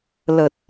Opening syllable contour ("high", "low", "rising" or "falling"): low